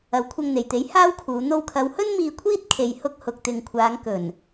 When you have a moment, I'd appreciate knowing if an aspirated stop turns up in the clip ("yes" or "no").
yes